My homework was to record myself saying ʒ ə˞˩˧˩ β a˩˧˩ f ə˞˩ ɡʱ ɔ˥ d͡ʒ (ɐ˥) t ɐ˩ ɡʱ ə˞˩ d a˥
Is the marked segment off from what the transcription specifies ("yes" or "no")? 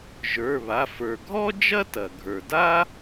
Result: no